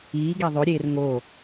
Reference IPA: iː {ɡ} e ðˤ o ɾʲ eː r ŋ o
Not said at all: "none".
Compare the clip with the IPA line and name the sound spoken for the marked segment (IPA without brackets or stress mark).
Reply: ɡ